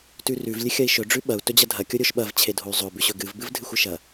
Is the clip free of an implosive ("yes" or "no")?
no